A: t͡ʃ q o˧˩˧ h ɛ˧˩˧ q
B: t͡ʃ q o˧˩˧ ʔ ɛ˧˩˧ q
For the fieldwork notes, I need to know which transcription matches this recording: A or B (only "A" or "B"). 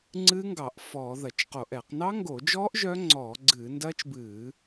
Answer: B